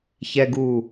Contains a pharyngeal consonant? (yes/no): no